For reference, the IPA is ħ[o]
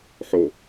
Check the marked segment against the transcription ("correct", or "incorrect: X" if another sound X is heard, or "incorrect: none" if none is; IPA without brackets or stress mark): correct